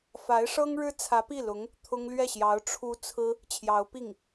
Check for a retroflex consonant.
present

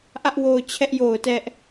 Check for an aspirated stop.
present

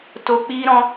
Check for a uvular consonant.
absent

